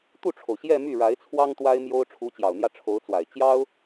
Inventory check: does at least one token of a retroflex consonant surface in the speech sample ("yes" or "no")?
yes